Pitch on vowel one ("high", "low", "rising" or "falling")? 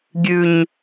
low